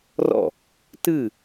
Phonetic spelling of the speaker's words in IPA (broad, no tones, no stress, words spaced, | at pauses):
rɔ̰ | tɨ